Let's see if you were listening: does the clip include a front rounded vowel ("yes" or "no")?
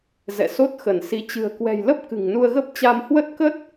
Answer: no